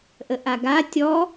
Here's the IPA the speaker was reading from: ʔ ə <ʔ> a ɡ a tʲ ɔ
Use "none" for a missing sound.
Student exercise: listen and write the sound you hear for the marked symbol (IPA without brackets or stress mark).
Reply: ʔ